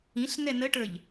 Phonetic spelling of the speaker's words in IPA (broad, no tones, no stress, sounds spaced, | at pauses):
ĩ ɬ n ɛ n ə ʈ ə˞ ʎ